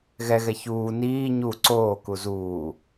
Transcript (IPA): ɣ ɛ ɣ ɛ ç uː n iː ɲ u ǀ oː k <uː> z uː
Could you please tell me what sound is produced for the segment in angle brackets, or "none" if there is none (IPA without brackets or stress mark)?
u